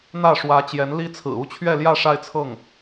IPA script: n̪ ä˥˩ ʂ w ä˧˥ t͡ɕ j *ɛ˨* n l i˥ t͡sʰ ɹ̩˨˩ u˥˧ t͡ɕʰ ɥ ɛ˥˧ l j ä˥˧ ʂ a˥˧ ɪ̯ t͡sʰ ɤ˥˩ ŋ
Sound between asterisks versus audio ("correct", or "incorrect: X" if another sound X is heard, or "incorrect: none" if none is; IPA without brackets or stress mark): incorrect: ɛ˧˥